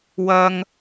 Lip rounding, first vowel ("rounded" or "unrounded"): unrounded